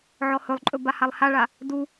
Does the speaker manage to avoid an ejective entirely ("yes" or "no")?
no